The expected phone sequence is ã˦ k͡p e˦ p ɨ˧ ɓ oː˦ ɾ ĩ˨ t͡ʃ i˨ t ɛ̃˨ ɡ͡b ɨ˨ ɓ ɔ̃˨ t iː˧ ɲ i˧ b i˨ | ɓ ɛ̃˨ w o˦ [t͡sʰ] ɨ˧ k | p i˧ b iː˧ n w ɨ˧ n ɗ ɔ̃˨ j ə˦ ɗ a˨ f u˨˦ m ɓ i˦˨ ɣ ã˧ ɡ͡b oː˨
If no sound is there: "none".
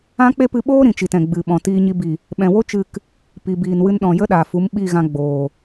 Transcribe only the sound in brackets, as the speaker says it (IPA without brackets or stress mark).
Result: t͡ʃ